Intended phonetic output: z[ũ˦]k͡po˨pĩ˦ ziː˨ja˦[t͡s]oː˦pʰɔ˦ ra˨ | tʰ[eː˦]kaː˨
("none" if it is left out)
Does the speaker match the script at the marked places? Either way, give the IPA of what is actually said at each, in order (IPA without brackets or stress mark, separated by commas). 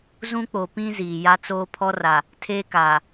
ũ˦, t͡s, eː˦